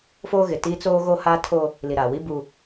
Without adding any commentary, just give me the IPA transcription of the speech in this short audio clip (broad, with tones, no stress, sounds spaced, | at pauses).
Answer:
f oː˦ ɣ ɪ˨ t i˦ t͡s oː˦ ɣ o˦ h aː˦ tʰ o˦ | l i˨ ɾ aː˨ w i˦ b u˦